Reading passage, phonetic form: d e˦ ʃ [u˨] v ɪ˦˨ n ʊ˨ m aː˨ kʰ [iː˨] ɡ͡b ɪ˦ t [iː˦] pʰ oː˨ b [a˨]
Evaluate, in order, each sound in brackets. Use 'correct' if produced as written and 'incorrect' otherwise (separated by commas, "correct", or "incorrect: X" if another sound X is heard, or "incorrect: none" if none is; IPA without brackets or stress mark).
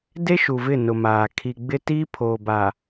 correct, incorrect: i˨, correct, correct